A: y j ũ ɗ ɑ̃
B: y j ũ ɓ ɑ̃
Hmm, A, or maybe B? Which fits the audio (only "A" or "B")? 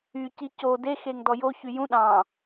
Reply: A